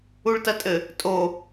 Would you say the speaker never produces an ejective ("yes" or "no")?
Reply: no